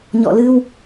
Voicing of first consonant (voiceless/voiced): voiced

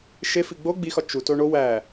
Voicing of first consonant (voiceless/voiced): voiceless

